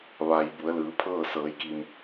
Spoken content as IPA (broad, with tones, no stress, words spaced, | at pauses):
ʋa˩j bu˩˧ə̯lɯː˩˧pʰɤː˥˨ sɤː˩˧jki˩m